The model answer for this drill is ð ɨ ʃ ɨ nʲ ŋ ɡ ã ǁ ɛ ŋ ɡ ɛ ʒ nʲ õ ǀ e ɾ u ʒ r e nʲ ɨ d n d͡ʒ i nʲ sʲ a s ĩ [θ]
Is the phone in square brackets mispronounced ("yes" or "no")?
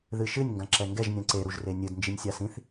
no